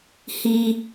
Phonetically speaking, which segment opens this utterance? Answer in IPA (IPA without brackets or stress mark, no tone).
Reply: h